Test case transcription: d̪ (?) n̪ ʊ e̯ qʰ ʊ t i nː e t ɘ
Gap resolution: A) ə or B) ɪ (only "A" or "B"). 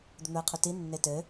A